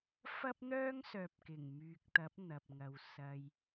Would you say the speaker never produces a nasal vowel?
yes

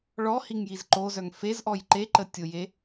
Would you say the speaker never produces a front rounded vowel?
no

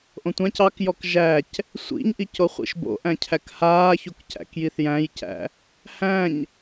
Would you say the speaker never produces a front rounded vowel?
yes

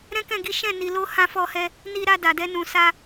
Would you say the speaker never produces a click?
yes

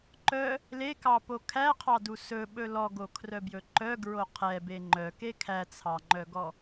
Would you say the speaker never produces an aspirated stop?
no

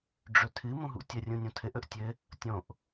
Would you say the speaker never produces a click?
yes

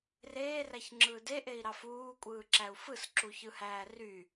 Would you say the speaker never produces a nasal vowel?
yes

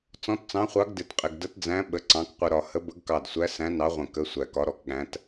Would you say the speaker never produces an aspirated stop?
yes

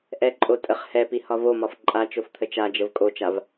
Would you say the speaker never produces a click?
no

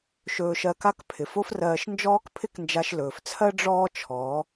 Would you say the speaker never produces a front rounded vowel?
yes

